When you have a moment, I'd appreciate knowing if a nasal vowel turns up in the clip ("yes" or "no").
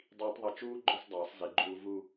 no